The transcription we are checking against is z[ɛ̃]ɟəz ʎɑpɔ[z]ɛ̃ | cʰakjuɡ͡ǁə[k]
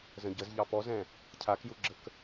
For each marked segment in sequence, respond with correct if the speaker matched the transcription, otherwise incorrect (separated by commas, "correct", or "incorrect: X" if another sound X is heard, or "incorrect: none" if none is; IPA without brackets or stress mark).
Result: incorrect: ə̃, correct, correct